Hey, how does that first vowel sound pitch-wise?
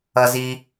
low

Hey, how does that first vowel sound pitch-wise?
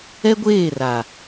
high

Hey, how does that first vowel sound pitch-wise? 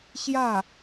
falling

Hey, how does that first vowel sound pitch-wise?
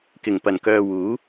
low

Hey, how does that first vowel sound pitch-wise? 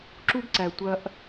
high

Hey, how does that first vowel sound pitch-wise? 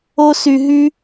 high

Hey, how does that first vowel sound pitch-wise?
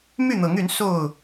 falling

